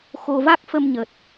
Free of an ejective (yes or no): yes